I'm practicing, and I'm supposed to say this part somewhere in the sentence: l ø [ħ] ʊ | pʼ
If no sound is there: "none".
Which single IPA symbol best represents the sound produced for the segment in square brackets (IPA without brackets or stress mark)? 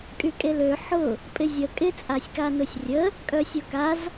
ħ